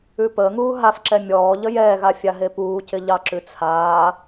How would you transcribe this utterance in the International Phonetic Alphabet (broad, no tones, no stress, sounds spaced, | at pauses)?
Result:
ʉ p əː ŋ uː ɦ a f ǁ ɛ mʲ ɔː ʎ ə j ɛː ɣ a fʲ a ɦ e p uː c ɪ ʎ ɑ ǁ ʉ t͡sʰ aː